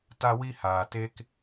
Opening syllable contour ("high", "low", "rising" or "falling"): high